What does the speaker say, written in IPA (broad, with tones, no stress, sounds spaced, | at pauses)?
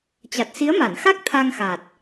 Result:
t͡ɕ a˨˩ t̚ s i˨˦ ə̯ m a˧˩ n x a˦˥ k̚ t̪ʰ a˧ ŋ x a˨˩ t̚